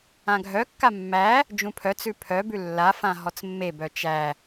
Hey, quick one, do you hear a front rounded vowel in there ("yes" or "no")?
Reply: yes